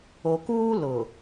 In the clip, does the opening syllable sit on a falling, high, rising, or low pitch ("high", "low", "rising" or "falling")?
low